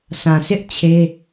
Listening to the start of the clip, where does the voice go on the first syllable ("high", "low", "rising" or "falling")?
low